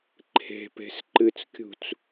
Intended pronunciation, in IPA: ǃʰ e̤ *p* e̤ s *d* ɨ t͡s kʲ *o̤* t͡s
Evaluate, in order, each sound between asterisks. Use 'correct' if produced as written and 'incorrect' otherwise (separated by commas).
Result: correct, incorrect, incorrect